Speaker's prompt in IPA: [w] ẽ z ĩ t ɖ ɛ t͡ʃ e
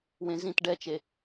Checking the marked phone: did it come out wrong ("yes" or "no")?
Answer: no